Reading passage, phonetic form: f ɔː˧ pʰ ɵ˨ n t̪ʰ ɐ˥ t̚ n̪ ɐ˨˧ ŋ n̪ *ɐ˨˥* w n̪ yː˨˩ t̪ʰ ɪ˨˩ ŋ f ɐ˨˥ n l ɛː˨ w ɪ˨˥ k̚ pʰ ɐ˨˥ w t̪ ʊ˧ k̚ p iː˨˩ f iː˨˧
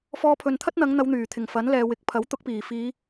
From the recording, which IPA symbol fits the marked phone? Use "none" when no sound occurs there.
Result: ɐ˨˧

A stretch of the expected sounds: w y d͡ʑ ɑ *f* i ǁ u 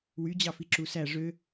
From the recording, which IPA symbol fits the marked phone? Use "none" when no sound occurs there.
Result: f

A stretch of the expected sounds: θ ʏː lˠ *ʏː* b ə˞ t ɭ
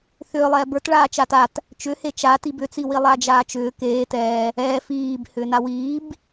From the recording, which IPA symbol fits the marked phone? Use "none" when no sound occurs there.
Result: ɛː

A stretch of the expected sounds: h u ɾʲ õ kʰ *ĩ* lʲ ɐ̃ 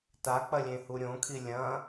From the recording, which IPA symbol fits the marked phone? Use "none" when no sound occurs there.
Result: i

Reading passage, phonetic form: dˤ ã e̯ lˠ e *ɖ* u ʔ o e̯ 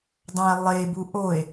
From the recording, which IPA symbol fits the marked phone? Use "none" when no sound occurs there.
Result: b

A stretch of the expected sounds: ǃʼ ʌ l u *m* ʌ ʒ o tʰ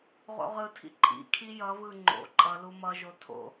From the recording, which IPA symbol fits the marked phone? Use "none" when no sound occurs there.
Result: m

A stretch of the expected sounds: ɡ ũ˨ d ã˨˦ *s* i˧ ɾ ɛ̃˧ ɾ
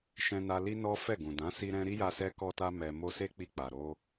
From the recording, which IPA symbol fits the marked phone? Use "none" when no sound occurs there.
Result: s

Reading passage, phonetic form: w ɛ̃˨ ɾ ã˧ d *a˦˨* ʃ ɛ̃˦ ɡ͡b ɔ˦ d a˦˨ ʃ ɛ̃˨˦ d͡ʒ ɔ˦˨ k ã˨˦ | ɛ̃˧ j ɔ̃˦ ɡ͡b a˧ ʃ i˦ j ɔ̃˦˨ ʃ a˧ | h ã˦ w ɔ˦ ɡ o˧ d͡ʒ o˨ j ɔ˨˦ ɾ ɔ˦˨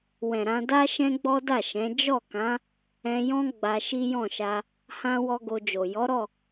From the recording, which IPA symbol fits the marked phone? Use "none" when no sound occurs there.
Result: a˦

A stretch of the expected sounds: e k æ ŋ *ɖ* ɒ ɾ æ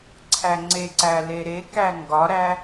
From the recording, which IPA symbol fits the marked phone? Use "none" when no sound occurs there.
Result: ɡ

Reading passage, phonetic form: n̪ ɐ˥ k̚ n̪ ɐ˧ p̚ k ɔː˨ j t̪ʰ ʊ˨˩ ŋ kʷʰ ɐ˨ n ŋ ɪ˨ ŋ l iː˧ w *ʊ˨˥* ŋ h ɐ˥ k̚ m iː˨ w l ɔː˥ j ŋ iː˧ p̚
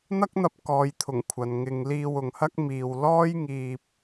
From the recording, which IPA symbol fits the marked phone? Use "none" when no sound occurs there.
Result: ʊ˨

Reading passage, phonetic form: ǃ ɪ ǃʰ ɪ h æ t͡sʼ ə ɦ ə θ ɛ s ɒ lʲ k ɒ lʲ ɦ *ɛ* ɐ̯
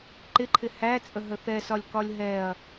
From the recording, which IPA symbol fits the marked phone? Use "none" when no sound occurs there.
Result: ɛ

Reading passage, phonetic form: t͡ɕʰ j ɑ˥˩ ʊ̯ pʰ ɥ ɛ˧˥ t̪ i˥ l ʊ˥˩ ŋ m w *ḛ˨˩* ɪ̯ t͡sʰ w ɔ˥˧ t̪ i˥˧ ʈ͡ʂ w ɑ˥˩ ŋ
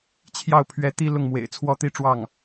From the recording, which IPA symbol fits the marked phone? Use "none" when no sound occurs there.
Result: ḛ˨˩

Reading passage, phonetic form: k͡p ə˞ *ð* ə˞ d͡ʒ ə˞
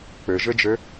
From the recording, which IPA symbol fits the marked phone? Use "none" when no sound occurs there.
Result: ʒ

